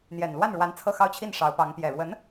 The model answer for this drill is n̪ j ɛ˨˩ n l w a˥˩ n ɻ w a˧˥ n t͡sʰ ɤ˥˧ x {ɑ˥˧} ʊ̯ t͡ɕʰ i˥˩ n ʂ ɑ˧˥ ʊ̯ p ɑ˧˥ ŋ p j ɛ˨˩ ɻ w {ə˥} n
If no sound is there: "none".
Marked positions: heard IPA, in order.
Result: ɑ˥˧, ə˧˥

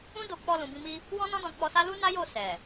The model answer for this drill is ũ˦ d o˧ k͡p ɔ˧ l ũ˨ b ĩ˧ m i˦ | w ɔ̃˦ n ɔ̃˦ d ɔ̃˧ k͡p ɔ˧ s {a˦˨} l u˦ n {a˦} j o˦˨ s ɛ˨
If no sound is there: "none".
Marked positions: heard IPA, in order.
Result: a˦, a˦

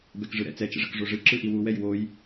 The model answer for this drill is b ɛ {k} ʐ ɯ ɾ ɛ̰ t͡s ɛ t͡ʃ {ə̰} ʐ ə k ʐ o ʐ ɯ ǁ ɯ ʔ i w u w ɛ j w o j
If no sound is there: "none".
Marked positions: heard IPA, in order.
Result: k, ə̰

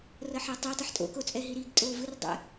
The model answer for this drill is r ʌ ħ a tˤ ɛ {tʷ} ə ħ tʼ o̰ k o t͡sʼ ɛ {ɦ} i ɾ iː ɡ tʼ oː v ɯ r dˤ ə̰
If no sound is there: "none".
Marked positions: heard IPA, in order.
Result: tˤ, ɦ

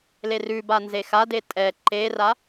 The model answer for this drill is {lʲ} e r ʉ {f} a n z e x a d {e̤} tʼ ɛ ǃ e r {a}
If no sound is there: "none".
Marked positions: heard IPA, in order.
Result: l, b, e, a

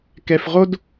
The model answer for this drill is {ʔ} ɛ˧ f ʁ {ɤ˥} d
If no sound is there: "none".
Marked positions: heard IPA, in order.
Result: k, o˥

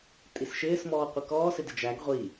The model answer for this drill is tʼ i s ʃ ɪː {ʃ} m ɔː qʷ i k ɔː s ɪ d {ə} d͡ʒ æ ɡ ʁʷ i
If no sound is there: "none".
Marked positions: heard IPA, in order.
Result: s, ɪ

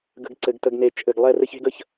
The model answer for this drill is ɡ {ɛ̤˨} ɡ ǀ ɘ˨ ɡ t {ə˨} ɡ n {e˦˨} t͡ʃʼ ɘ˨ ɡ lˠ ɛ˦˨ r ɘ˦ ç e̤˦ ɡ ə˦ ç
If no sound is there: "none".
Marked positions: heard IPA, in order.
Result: ə̤˨, ə˨, e˨

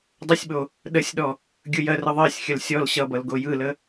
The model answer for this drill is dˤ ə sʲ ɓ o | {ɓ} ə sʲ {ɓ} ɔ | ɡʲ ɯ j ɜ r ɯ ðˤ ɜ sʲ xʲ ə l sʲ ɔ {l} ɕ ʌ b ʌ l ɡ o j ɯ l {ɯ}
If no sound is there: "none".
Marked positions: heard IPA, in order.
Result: ɗ, ɗ, l, ə

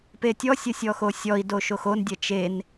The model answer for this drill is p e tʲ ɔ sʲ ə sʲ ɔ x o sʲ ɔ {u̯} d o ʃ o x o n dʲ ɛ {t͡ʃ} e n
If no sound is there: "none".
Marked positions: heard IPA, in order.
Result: i̯, t͡ʃ

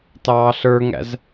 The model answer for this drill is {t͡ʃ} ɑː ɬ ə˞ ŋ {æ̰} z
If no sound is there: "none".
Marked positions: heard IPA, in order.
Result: t, æ̰

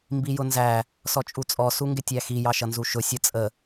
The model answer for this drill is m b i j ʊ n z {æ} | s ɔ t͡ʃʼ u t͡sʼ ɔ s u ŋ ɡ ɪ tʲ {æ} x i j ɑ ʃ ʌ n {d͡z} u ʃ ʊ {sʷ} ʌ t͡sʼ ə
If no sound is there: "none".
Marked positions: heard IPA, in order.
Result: æ, æ, z, sʲ

